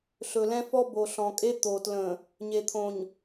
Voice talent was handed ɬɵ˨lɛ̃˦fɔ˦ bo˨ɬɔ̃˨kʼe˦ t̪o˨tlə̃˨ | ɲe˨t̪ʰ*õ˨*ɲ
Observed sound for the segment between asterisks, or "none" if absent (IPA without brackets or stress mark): õ˨